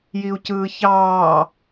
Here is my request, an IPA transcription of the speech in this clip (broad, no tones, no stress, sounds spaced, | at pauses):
j i u̯ c ɯː ç ɑː